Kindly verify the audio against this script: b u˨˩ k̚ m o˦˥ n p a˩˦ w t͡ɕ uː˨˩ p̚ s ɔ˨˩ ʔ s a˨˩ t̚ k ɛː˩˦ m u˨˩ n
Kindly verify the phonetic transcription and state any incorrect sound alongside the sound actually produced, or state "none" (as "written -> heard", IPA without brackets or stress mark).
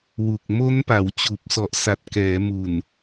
b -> w